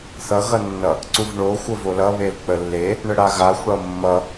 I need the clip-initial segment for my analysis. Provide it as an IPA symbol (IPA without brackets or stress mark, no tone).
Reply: θ